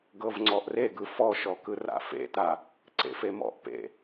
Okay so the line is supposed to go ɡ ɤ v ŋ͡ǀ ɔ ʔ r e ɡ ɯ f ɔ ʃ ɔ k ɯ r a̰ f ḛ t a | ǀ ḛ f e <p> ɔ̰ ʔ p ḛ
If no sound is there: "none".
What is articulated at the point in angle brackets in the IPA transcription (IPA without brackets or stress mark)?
m